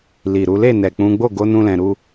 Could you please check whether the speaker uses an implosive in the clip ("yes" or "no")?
no